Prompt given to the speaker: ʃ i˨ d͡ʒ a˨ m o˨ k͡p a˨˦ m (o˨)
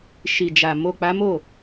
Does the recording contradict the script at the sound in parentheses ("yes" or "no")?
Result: yes